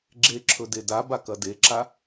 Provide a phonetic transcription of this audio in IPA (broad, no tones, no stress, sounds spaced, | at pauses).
ɡ͡ǁ e ǁʰ ɵ d e d a b a k ɐ d e ǁ a